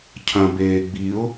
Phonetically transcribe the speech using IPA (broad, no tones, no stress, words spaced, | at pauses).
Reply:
cʰɐ̃ beːɡ͡biʊ̯